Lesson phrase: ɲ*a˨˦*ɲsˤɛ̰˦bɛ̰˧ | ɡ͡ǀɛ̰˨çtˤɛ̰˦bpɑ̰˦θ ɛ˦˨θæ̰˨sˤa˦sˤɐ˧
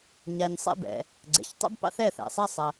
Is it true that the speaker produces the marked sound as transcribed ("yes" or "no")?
no